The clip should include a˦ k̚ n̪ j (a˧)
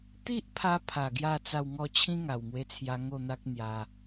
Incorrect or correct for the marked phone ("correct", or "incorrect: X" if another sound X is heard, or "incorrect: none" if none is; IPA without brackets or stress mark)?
correct